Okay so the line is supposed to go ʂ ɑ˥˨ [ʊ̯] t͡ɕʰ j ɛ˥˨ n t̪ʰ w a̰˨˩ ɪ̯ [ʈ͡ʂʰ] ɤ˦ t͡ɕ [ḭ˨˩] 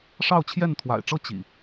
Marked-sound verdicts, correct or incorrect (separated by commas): correct, incorrect, correct